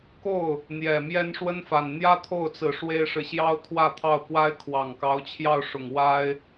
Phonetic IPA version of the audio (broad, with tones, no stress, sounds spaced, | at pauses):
k o˥˩ ʊ̯ | n̪ j ɛ˨˩ m j ɛ˥ n ʂ w ə˥ n f a˨˩ n n̪ j ä˥ t̪ʰ o˥˩ ʊ̯ t͡s ɹ̩˨˩ ʂ w e˥ ɪ̯ ʂ ɻ̩˨ ɕ j ɑ˥ ʊ̯ t̪ʰ w ä˥˧ t̪ʰ ɑ˥˩ ʊ̯ k w a˥ ɪ̯ kʰ w ɑ˨˩ ŋ k ɑ˧˥ ʊ̯ t͡ɕʰ j ɑ˥˩ ʊ̯ ʂ ʊ˨˩ ŋ w a˥ ɪ̯